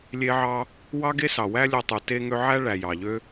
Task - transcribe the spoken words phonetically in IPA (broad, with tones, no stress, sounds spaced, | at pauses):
lʲ e˥ ʕ ɑ˥ | w ɑ˥ ɡ e˥ s ɑ˩ w æ˥ lʲ o˦ tˤ y˨ t e˦ ŋ ø˦ ʕ æ˥ ɭ æ˨ j ɑ˩ ʎ ø˥